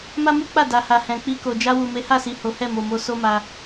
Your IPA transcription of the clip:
m a˦ m u˦ k͡p a˦˨ d a˨ h a˨ h ɛ̃˨ k͡p i˧ k o˨ d͡ʒ a˧ w u˨ m e˨˦ h a˦˨ s i˨ h o˨˦ h ɛ˦˨ m o˨ m o˧ s o˦ m a˧

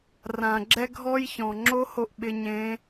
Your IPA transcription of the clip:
r ã˩ ɡ͡ǁ ɛ˧ ɡʱ ɔ˧ j ç ɔ̃˩ ŋ͡ǁ o˥ h o˧ ʔ ɓ ɪ˧ ɲ ẽ˧˥

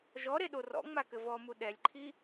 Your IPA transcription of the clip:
ʒ ɔ ɾ e ɗ o r ɔ̰ ŋ͡m a k ɘ v ɔ m u ɗ ɛ lʲ ǃʰ i

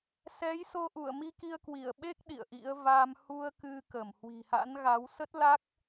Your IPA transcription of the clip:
s ɛ˨˦ j s o˧ ʔ u˧˩ ə̯ m i˧ k i˧ ə̯ k w i˧˩ ə̯ ɓ e˦˥ k̚ ɗ ḭ˧˨ ə̯ ʔ ḭ˧˥ ə̯ v a˧ m h u˧ ə̯ k ɨ˧ k ə˧˩ m h w i̤˨˩ h a̰˧˥ n ɣ a˨˦ w s ə˦˥ t̚ l a˦˥ k̚

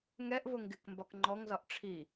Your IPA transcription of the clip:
ŋ ɛ ʔ v ʊ ŋ ɡ ɪ k m b ɒ k ŋ͡ǃ ɔ ŋ z ɒ ʔ ʈ͡ʂʰ i

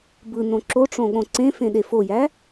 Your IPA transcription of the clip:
b ɯ n õ ǁ o ʈ͡ʂ õ ɠ õ ǀ ẽ f ẽ ɗ e f o j æ

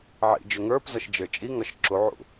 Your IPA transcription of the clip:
ʕ ḭ d͡ʒ ø ŋ ə˞ p z ɒ ʃ d͡ʒ ə˞ t͡ʃʼ i ŋ ɒ ʃ ǁ u ʕ ṵ

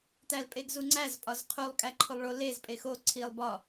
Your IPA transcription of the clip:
t æ l pʼ e ɡ z u ŋ͡ǀ æ z pʼ ɒ z qʰ u lˠ kʼ æ ǃʰ o lˠ ɭ o l e z pʼ e x o ǀʰ i lˠ b ɒ

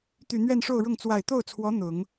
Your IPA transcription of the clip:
t̪ y˨˩ n̪ ɥ ɛ˥˧ n ʂ o˥˧ ʊ̯ ɻ ʊ˥˩ ŋ t͡s w a˨˩ ɪ̯ t̪ o˥˩ ʊ̯ t͡sʰ w ɔ˧˥ n̪ ʊ˨˩˦ ŋ

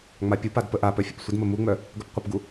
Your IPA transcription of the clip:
ŋ͡m a pʲ u p a d p ə ʔ a p œ fʲ ə p sʷ ə d m ə m u ŋ͡m œ | ɡ œ p qʷ ə p ɡ u

